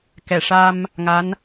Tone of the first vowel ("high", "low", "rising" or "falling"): low